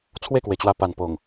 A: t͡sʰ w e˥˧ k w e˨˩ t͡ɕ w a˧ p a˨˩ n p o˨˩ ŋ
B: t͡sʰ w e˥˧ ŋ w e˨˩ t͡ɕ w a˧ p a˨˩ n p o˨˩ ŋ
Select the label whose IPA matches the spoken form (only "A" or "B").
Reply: A